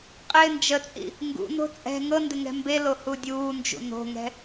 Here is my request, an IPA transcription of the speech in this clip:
qʼ ɪː n d͡ʒ ə t͡sʼ ḭ | ŋ ɡ ṵ n o̤ t͡sʼ ɛ̤ ŋ ɤ n d ɪ ŋ ɛ̤ m b e l o h u dʲ uː n d͡ʒ ṵ n o̤ ŋ ɛ̤

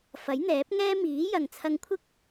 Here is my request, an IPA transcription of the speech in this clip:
f ɐ˨˥ j n̪ ɛː˨˥ p̚ ŋ ɛː˥ m iː˨˥ j ɐ˨ ŋ t͡sʰ ɐ˧ ŋ kʷʰ ɪ˥ k̚

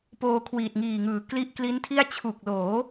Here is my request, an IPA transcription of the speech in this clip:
p oː˧ kʰ w iː˨˩ t̚ ŋ iː˨˩ ŋ ɯː˩˦ k l i˦˥ ʔ k l i˦˥ n tʰ i˥˩ a̯ t͡ɕʰ u˨˩ k̚ l oː˩˦

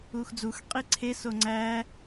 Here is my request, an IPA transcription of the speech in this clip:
uː x d͡z u x qʼ i ǀʰ e s o ŋ͡ǀ æː

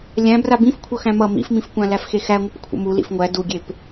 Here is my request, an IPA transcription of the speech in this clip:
lʲ æ̃ b r a b ĩ f kʷʰ ʌ x æ̃ m ʌ m ḭ f m ĩ f kʷ ã l æ f x e x æ ŋʷ ʌ p kʷʰ ə̰ m u l ḭ f ŋʷ æ d u ɡʲ e p

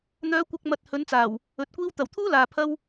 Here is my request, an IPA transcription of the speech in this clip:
n̪ œː˨˧ kʷ ɐ˨ k̚ m ɐ˨ t̚ h ɵ˨˧ n t͡s aː˨˩ w | ɵ˨ t̚ kʷ iː˥ w t̪ ɐ˨˩ w t̪ʰ uː˥ l aː˨ pʰ ɐ˥ w

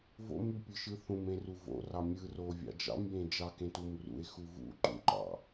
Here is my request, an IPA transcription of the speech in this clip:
v o̰ m y pʲ ɯ ʃ ɯ θ ũ m ẽ r u v o̰ r ɑ mʲ ɯ r o vʲ ɑ̰ d͡ʒ ɑ̰ m j ẽ d͡ʒ ɑ k ẽ t u m r ṵ e̯ x u v ṵ ǃ ṵ ǃ ɑ̰

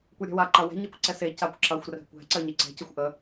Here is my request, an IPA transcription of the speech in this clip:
kʷ ɛ ɾʲ ɛ̤ w a ǃ ɐ w ɛ̤ ɲ e kʷ ǀ ɛ s e c a kʷ ǁ ɐ xʷ r ɛ̤ kʷ ɛ̤ ǀ ɜ ɲ e ǀ ɛ̤ c ə xʷ ʔ ə

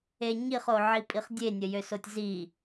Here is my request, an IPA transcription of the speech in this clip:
e ɲ i χ o ʕ i pʼ i χ dʲ e nʲ ə j ø s o tʲ z i

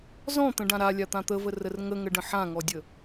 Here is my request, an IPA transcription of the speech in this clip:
z ɔ̃ t̪ ə̃ ɖ ã ɾ a lʲ a t̪ ã t̪ ə v ə r ə r ŋ ə ŋ ə ɖ ə̃ ħ ã ŋ ɔ dʲ ə

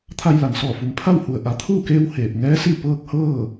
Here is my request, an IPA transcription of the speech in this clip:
t̪ʰ a˧ j l a˩ n s ɔː˧˩ f u˩ m pʰ a˥˨ w h u˩ ə̯ ʔ a˩˧ t̪ʰ uː˥˨ k eː˧ w h eː˧˩ p̚ ŋ ɛː˧˥ s i˥˨ p ɤː˧ k̚ h ɤː˥˨

